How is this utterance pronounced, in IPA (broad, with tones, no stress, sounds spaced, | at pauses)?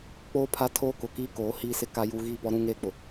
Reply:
k͡p oː˦ pʰ a˦ tʰ oː˦ k ʊ˨ k iː˦ k oː˨˦ h iː˦ s ɪ˦ k a˦ j u˦ ɣ iː˦˨ p ɔ˦ ɾ ũ˦ ŋ eː˦ k͡p ʊ˨